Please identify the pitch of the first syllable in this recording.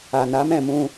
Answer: low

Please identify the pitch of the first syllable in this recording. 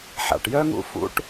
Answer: low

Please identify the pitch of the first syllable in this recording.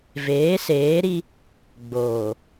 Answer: rising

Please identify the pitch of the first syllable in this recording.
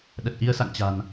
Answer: low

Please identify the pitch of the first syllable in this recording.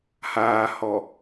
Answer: low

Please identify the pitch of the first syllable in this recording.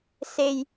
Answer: low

